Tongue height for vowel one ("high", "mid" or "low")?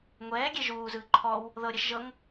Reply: mid